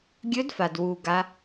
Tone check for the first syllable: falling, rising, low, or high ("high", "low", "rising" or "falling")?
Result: rising